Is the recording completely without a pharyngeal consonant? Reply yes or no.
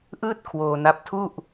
yes